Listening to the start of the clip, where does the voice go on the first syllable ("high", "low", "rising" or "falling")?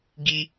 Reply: high